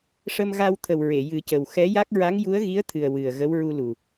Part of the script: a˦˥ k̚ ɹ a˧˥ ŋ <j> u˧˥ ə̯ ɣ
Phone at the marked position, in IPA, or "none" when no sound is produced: j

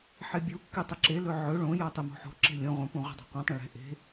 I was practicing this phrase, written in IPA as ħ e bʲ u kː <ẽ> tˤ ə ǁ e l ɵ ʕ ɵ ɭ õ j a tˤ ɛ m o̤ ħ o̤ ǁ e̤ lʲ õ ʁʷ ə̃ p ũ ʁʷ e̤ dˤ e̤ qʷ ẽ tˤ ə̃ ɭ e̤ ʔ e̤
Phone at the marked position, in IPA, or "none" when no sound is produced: e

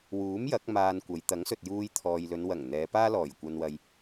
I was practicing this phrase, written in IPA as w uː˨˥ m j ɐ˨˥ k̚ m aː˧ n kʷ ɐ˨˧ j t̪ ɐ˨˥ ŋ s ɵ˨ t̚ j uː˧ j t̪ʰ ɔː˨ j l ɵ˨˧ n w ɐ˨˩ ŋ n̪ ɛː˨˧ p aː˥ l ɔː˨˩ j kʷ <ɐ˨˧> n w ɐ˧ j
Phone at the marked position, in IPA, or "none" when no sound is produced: ɐ˧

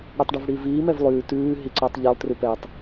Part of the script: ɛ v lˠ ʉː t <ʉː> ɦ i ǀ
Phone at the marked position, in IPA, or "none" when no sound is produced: ʉː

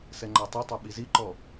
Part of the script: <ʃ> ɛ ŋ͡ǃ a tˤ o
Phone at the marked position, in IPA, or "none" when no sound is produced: s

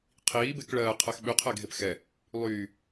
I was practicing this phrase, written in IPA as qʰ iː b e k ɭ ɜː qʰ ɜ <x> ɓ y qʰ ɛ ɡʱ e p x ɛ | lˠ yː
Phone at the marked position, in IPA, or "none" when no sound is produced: x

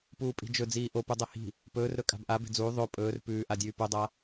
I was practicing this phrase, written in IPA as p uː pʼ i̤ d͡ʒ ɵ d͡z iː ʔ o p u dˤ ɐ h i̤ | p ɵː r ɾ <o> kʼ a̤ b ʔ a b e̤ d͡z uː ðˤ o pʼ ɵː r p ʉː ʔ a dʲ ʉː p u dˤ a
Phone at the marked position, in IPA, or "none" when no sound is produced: ɵ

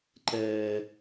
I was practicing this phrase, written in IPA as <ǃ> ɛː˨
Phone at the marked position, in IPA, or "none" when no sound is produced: ǃ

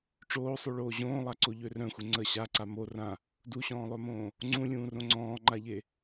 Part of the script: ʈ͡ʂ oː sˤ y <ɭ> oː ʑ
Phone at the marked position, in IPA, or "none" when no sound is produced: ɭ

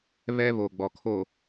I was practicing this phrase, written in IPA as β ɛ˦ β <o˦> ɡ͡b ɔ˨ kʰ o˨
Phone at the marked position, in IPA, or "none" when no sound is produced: o˨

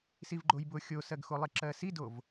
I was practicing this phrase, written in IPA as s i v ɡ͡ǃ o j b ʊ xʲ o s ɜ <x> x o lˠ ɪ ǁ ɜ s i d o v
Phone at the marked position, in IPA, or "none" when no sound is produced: ɡ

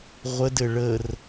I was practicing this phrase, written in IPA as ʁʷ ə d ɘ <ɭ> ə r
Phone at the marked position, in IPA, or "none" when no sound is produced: ɭ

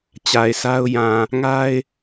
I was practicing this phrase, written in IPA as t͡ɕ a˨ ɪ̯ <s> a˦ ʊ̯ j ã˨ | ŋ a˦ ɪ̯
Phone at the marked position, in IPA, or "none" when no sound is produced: s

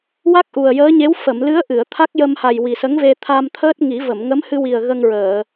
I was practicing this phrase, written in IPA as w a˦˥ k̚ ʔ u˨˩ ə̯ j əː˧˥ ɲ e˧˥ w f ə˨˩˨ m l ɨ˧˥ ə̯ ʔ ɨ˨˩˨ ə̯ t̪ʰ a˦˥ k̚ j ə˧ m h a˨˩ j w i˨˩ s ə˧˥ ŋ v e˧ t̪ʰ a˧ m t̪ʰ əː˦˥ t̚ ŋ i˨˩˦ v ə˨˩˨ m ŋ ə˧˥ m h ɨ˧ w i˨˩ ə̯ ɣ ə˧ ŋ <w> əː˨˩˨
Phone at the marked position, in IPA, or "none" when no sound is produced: ɹ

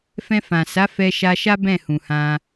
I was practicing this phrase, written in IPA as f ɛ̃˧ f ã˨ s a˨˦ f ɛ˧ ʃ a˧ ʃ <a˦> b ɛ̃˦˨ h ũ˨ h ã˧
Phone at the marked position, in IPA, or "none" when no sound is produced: a˦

